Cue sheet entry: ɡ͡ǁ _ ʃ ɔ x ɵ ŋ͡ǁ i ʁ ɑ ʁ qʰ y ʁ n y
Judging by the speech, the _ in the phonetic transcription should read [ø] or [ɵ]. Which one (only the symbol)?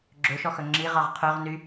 ø